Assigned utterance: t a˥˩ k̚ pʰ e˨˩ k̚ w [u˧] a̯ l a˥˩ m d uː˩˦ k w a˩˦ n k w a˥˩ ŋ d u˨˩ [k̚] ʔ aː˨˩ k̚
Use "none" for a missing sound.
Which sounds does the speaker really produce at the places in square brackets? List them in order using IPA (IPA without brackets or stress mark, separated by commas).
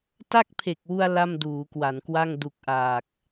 u˧, k̚